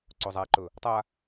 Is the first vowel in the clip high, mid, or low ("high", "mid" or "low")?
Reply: mid